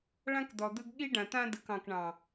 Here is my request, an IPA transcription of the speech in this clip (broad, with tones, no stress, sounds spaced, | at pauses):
ɭ ã˦ k d̪ ɔ˨ d̪ ɯ˦ ɡ ɠ i˦ ɖ ã˨ t̪ ã˦ d ɯ˨ k ɑ̃˨ k ɳ ɑ̃˨